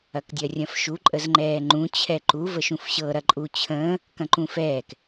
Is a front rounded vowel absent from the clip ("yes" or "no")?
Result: yes